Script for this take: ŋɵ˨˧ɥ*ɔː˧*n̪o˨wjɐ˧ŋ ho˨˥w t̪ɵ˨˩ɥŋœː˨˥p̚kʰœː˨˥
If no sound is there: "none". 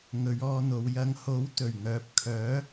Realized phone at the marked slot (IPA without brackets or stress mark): ɔː˧